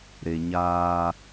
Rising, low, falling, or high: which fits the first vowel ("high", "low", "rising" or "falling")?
low